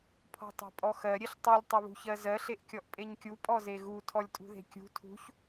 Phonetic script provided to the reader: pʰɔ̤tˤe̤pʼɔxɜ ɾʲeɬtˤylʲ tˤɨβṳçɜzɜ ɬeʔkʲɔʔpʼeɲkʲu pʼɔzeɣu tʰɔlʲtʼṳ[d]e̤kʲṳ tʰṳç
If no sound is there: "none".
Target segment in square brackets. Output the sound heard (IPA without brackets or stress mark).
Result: ð